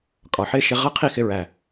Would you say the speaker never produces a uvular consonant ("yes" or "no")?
no